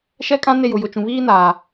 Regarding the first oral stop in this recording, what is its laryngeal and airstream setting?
ejective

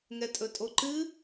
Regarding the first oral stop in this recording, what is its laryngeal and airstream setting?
ejective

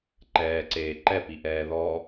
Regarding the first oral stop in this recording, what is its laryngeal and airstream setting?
click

